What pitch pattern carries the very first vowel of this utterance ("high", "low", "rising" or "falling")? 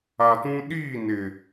low